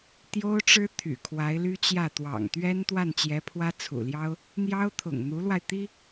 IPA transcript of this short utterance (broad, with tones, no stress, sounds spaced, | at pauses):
t̪ j o˥ ʊ̯ ʈ͡ʂ ɻ̩˥ t̪ʰ y̰˨˩ kʰ w a˧˥ ɪ̯ l y˥ t͡ɕ j ä˥˩ t̪ w ɑ̰˨˩ ŋ t̪ ɥ ɛ˥ n t̪ w a˥˩ n t͡ɕ j ɛ˧˥ pʰ w ä˥ t͡sʰ ṵ˨˩ l j ɑ˥ ʊ̯ | n̪ j ɑ˥ ʊ̯ t̪ʰ ʊ̰˨˩ ŋ n̪ u˧˥ l w a˧ ɪ̯ t̪ i˥